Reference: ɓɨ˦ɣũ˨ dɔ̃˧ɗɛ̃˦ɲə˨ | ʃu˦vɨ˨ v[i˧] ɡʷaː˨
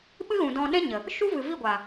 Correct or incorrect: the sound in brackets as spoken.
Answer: incorrect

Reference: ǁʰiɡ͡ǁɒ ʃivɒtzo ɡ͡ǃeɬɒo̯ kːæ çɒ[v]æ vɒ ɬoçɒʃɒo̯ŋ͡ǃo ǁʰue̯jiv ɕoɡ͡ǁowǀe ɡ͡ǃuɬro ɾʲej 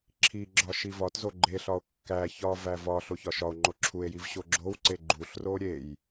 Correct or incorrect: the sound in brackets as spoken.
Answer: correct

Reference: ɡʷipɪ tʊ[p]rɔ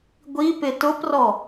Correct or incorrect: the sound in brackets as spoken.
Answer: correct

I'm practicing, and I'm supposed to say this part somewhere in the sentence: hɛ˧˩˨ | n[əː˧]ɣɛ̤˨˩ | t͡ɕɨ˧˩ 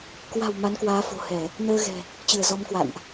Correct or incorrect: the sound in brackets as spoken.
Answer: correct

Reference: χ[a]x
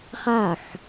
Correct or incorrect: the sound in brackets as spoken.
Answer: correct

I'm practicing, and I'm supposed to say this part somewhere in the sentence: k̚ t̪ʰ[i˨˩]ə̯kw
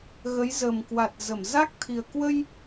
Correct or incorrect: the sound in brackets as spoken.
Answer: correct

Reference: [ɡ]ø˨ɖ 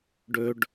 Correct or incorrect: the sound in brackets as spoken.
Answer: incorrect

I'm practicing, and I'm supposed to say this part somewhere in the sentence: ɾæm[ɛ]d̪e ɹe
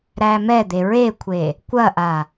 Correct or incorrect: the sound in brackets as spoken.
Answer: correct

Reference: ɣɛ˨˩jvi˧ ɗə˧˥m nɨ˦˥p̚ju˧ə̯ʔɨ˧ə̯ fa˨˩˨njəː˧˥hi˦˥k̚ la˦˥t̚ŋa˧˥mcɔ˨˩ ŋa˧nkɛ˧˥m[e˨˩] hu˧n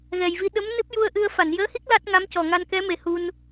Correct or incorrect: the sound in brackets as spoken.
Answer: correct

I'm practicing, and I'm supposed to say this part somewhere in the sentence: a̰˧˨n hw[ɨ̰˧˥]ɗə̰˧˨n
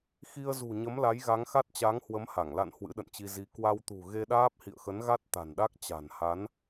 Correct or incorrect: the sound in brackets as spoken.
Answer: correct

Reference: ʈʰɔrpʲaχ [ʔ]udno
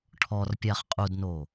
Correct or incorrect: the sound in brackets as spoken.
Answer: incorrect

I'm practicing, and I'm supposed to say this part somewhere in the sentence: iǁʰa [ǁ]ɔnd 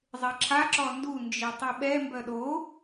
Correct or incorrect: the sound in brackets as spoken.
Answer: correct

